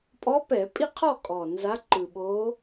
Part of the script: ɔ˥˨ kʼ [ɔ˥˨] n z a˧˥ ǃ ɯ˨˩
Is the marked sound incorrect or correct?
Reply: incorrect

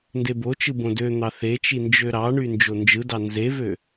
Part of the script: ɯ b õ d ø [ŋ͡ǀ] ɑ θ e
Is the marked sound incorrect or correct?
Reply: incorrect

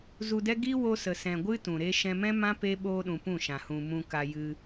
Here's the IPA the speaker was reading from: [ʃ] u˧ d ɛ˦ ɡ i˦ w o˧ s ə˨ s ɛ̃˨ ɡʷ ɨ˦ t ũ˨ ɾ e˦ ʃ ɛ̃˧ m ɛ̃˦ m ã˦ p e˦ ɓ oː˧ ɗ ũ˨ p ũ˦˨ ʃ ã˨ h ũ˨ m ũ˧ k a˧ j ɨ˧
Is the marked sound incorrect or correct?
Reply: incorrect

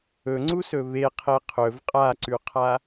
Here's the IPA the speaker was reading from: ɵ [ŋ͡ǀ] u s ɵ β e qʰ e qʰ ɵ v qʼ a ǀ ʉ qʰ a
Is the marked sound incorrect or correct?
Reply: correct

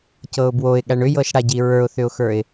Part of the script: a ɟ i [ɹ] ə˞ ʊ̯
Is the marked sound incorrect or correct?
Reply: correct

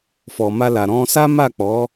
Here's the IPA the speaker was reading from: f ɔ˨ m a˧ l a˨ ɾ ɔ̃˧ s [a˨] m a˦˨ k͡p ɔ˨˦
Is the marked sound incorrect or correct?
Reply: incorrect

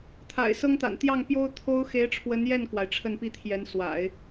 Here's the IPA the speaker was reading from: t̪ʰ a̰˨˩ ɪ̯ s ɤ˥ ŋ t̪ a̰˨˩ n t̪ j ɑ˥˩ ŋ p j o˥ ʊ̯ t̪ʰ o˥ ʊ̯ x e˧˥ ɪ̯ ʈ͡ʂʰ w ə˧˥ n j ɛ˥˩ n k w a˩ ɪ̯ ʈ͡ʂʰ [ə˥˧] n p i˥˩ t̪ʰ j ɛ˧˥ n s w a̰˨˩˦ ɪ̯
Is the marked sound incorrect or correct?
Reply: correct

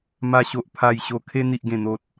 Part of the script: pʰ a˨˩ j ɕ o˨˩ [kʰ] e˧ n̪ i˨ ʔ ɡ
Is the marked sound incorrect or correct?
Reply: correct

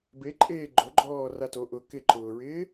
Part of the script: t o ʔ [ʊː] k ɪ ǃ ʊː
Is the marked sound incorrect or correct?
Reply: incorrect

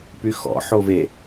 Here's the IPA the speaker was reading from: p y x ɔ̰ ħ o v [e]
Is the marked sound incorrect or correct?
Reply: correct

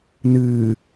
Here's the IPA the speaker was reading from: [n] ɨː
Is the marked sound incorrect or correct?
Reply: correct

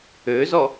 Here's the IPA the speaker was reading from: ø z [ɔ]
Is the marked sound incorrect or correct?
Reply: correct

